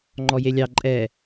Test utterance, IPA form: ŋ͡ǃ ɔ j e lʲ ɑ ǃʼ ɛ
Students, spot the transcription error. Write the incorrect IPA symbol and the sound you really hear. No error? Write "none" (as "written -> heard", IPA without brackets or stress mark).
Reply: none